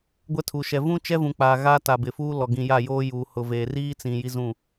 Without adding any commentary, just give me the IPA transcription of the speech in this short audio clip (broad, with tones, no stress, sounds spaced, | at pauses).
ɡʷ ɛ˦ tʰ u˨ ʃ ɛ˨ v ũ˦ t͡ʃ ɛ˦ v ũ˨ k͡p aː˨ ɣ a˦ t a˨ b ɪ˨ f uː˦ l ɔ˨ ɡ ĩ˨ j a˦˨ j oː˦ j uː˨ h ʊ˨ v eː˨ r iː˦ t͡s ĩ˨ j i˦ z ũ˦˨